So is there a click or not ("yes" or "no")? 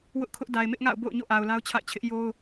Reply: no